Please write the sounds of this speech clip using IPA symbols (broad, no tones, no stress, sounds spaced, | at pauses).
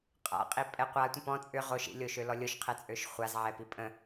qʼ a̰ qʼ i pʼ ɛ qʷ a tʷ ə̃ p ɔ̃ t͡sʼ ʏ ʁ o ʃ ḭ lʲ o ʃ ø l ɔ lʲ o ʃ qʰ ɛ t͡sʼ ø ʃ χʷ a z ʕ ɛ p i pʼ ə̃